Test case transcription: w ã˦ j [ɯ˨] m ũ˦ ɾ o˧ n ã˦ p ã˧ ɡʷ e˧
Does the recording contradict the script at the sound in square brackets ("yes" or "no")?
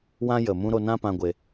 yes